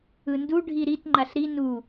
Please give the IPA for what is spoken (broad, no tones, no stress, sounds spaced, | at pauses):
ɯ n d u ɖʱ i ɾ i t ŋ͡ǃ a ɬ ɾ i n u